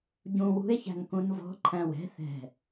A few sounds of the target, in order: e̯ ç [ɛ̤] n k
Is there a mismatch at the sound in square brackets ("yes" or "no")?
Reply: yes